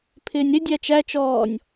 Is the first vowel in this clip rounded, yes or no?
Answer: no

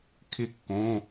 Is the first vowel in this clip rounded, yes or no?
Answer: no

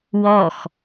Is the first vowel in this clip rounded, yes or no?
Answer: yes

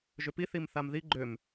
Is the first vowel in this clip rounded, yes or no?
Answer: yes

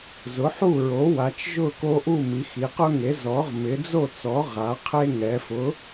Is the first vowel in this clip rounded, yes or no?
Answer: yes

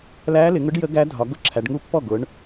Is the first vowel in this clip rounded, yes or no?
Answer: no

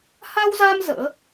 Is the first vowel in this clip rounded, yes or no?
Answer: no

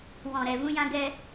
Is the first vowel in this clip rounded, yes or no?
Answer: yes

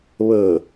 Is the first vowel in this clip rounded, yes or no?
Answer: no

